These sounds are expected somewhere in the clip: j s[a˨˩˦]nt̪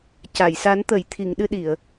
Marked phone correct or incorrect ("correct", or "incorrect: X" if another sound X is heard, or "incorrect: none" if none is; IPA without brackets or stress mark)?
correct